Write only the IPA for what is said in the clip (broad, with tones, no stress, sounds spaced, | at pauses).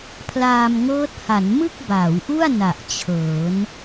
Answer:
pʰ l aː˧ m ŋ ɤː˦˥ t̚ h a˩˦ n m ɯ˥˩ k̚ b aː˩˦ w ʔ u˥˩ a̯ n a˨˩ ʔ t͡ɕʰ ɤː˩˦ n